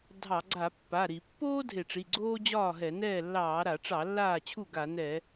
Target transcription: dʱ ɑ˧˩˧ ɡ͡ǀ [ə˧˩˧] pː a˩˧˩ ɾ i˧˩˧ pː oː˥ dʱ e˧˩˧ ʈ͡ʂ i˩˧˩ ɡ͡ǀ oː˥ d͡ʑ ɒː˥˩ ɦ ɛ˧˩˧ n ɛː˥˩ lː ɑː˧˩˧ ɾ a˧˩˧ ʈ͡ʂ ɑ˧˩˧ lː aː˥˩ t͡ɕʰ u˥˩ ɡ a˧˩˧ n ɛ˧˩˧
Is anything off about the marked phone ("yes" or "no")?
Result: yes